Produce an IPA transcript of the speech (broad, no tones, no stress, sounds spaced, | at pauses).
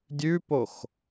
dʲ ʉ p o x